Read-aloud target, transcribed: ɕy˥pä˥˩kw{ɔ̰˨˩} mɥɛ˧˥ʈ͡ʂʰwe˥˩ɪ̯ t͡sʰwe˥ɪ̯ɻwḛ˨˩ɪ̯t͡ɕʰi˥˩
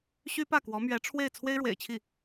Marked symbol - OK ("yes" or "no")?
no